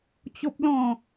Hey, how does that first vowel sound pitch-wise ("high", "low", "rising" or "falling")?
high